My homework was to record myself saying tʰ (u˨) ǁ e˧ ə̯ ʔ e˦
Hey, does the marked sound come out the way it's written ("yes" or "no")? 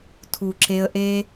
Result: yes